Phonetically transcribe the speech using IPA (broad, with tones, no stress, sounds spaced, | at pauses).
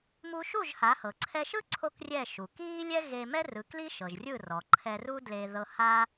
m u˧ ʃ u˥˩ ʒ h a˩˥ h ɤ˩ ǀʰ ɛ˧ ʃ ɯ˥ ǀʰ o˥ k rʲ ɛ˥˩ ʃ u˩ k iː˥ lʲ ɛ˥ ɣ e˧ m ɛ˥ r ɯ˩˥ k l i˥ ʃ ɤ˩ ʒ rʲ ɯ˥˩ r ɔ˩ ǃʰ ɛ˧ r u˥ d l e˧ ð ɤ˧ h a˥